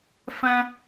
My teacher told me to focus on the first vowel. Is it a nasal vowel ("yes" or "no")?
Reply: yes